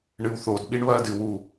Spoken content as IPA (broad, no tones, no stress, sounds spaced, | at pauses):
ɳ ɨ w θ o d ɓ i ɳ β ɐː d ɨ w u